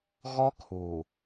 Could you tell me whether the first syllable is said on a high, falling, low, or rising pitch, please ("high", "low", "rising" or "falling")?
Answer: high